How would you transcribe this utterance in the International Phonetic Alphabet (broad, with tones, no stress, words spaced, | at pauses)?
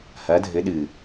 hɐ˨˦dʱɘ˨˦ ɗɨ˨